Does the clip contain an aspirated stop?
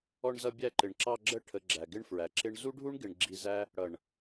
yes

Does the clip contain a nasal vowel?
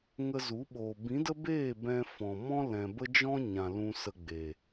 yes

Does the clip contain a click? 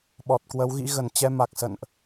no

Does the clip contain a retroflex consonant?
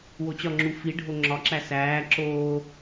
yes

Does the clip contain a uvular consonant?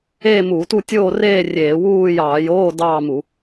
no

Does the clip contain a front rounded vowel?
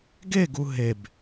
no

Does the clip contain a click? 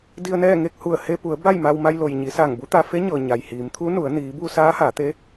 no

